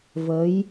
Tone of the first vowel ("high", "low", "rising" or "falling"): rising